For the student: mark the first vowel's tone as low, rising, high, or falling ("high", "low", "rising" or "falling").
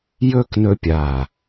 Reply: high